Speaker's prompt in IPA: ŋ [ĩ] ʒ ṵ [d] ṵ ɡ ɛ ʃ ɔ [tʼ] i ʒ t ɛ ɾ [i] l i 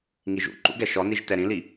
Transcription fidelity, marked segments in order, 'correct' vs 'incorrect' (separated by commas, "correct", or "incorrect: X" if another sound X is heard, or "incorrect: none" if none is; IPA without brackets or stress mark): incorrect: i, incorrect: ǃ, incorrect: n, incorrect: ĩ